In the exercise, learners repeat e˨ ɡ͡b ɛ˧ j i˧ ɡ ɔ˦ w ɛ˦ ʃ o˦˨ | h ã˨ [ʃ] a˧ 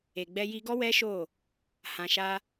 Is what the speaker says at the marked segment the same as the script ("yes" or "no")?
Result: yes